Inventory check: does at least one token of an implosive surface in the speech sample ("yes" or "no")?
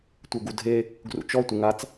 no